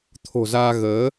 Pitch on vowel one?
low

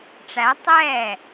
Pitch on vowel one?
rising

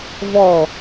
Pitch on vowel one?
falling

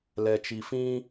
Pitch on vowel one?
low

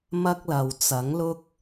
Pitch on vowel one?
high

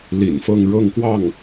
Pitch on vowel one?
low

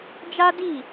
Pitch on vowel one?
high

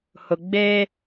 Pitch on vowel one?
low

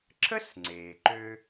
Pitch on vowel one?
high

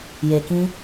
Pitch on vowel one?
low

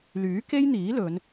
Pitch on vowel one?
rising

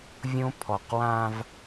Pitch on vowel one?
high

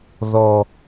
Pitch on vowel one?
low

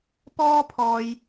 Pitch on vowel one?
high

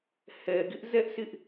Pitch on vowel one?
low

